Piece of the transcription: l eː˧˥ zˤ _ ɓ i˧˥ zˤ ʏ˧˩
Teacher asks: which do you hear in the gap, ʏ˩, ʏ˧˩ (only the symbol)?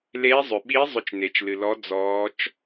ʏ˩